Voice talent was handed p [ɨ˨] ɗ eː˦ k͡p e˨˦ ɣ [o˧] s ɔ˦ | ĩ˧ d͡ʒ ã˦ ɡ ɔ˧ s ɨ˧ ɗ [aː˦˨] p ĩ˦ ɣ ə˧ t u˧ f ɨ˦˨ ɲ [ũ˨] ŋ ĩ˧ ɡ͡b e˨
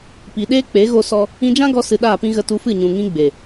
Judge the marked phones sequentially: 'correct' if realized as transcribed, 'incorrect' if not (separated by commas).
incorrect, correct, correct, correct